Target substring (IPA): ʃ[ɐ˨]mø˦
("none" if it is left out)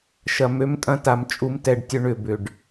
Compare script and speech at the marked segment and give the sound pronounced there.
ɐ˨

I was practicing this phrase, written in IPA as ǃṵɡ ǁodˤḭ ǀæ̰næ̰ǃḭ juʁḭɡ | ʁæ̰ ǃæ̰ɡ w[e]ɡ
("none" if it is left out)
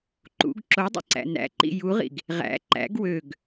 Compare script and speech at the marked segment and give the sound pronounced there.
ø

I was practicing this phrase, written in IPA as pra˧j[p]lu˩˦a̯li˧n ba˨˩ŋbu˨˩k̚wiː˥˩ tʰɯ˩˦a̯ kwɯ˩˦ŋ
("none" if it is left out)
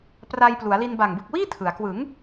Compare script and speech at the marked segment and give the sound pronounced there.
p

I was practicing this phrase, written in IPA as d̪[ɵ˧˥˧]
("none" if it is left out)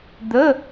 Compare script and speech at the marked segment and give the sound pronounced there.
ə˧˥˧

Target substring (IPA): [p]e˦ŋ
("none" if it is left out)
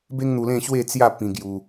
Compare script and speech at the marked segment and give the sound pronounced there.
b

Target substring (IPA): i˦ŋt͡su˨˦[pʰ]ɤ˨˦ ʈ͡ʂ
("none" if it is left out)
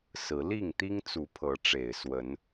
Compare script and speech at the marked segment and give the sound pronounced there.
pʰ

